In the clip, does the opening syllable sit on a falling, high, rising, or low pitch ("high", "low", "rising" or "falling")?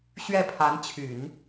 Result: falling